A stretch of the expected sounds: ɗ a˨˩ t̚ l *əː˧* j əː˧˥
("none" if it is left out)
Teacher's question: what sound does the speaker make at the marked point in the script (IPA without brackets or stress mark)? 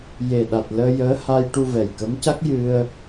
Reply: əː˧